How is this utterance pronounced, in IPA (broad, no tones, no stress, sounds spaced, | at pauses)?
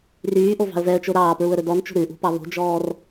r yː ʔ o v ɑ̤ ə̯ v ɛ ə̯ t͡ʃ o ɾ ɑː p ɹ u ə̯ ɾ ɵ d ɔ n t͡ʃ o̤ ɾ ʉ ʔ ṳ p ɑ β o̤ d͡ʒ ɔː r